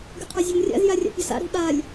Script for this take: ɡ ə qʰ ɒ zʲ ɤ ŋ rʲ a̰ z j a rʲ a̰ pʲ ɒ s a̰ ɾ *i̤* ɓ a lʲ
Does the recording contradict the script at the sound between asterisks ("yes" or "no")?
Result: no